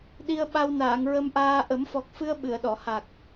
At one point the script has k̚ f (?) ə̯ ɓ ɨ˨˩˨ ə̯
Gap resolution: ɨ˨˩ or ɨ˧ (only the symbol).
ɨ˧